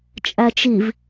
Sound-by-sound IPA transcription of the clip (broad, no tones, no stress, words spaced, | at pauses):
t͡ʃʼæt͡ʃiv